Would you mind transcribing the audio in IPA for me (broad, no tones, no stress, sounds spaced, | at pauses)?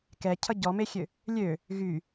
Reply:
k ɛ cʰ ʌ ɟ ɔ m e xʲ ø | lʲ ø | ɣ y